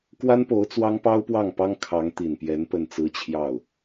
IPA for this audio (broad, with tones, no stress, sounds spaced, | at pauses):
k w a˥ n p o˧˥ ʊ̯ t͡s w ɑ˥ ŋ p ɑ˥ ʊ̯ p w ɑ˥˩ ŋ p ɑ˥ ŋ kʰ ɑ˧˥ ŋ t̪ i˨˩ n p j ɛ˧˥ n p ə˥˩ n t͡s ɹ̩˥ t͡ɕʰ j ɑ˥˩ ʊ̯